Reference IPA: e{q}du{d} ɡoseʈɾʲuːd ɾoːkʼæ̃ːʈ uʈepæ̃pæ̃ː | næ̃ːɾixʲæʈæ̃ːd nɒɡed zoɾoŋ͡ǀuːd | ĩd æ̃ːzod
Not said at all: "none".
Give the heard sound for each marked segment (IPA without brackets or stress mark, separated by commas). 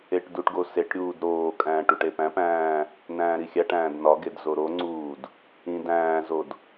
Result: ʈ, ʈ